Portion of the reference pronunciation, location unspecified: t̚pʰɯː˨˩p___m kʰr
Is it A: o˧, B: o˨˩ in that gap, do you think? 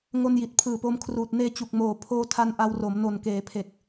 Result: A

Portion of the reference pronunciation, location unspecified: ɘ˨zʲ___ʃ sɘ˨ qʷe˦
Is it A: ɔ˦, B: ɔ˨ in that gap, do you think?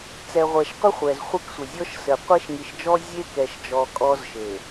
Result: A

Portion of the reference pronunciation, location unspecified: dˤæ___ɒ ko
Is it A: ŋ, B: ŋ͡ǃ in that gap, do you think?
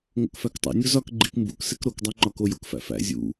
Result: B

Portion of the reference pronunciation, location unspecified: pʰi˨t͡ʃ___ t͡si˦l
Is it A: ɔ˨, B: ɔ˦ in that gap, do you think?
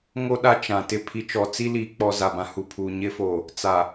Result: A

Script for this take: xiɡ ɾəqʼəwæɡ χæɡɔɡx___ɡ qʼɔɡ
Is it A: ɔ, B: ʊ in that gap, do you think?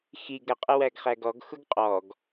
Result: B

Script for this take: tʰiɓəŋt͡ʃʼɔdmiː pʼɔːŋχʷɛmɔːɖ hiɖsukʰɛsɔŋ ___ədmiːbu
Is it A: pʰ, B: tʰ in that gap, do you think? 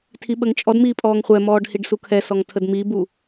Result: B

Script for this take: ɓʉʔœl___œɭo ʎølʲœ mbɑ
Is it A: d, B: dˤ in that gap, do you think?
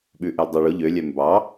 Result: B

